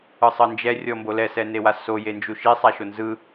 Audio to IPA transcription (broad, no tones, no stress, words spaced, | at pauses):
ɯsˤɤnd͡ʒɛ rʲɔmbolɛ sɛnewaso jend͡ʒuʃi sˤaʃonzɯ